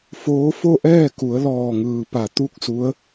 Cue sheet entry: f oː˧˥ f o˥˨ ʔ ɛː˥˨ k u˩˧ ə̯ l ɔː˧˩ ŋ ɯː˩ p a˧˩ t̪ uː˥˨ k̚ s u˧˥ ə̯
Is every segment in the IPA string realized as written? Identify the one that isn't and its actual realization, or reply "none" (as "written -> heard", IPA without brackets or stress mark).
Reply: uː˥˨ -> u˥˨